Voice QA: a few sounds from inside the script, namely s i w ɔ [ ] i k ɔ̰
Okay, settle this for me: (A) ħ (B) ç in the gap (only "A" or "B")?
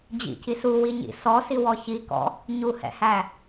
B